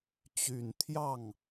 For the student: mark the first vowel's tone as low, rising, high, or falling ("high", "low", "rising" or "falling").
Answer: low